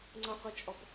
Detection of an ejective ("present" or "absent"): present